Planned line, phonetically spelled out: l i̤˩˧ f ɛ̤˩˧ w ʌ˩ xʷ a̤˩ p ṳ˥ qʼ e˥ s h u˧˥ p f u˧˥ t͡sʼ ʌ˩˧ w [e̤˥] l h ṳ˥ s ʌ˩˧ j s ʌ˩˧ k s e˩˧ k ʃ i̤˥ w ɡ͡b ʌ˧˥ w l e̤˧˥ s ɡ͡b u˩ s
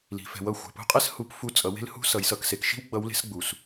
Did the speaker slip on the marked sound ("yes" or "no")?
no